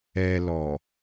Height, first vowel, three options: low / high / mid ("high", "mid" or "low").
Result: mid